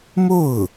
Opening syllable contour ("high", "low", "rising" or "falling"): falling